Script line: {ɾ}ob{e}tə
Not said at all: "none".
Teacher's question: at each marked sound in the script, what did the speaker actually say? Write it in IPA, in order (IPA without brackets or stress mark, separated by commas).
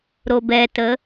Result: ɾ, ɛ